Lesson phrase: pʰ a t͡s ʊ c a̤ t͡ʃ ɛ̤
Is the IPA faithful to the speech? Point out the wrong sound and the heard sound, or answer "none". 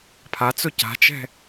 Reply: none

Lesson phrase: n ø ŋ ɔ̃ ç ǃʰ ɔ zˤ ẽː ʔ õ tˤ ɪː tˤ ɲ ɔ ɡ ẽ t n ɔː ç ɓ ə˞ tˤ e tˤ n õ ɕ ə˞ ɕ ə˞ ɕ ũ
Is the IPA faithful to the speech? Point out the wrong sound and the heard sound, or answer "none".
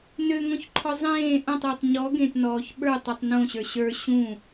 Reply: e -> ø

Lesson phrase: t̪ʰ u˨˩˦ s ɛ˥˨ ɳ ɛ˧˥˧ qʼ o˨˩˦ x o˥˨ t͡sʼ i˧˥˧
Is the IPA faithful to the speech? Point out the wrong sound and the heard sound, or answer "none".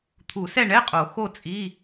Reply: none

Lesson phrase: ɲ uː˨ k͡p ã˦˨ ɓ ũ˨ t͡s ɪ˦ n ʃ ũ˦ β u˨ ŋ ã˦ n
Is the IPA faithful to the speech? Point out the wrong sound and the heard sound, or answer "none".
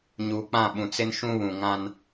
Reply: u˨ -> ũ˨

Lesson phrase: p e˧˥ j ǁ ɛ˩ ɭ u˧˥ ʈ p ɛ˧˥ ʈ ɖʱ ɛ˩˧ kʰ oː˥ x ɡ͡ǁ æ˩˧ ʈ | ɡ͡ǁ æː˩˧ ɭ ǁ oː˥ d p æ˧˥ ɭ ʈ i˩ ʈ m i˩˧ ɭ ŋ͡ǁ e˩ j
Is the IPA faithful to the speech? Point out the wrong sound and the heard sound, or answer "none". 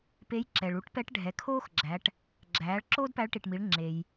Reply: none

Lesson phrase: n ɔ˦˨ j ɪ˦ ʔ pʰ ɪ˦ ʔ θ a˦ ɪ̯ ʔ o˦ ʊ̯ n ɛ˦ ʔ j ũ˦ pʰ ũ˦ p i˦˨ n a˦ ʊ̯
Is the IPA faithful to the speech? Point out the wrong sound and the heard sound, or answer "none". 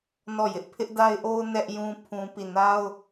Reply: θ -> d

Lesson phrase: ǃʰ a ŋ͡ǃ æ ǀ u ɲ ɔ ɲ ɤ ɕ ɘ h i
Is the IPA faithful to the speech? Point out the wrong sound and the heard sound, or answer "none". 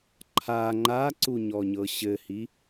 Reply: æ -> a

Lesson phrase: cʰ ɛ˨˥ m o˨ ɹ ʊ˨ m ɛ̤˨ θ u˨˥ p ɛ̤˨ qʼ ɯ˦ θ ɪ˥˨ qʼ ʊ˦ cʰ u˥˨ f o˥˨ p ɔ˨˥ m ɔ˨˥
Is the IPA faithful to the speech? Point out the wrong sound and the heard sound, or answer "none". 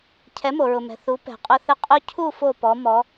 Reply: ɯ˦ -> ʊ˦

